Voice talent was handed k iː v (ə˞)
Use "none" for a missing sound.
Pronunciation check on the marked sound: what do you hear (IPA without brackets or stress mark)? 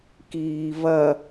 ɐ